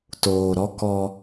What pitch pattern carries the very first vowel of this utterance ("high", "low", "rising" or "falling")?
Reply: low